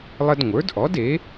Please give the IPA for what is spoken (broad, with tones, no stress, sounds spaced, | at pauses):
lˠ ə˦ d ŋʷ ə˞˩˥ d ʔ ɔ˩˥ d e˩˥